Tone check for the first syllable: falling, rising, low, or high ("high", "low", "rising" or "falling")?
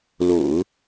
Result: low